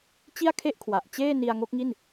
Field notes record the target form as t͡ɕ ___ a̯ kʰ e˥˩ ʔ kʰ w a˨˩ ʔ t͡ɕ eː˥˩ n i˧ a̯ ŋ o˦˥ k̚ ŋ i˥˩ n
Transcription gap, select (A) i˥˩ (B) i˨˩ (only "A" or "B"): A